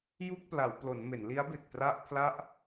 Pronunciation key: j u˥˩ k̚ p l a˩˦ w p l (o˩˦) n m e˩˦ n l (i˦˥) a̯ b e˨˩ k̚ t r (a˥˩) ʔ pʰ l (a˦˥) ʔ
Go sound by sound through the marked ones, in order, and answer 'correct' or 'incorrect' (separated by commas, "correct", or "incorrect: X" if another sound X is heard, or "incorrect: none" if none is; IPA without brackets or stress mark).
correct, correct, correct, correct